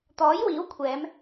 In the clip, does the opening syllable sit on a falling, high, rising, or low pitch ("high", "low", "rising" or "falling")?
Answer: rising